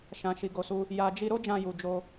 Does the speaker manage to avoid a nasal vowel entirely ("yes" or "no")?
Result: no